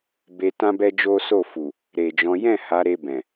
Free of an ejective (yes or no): yes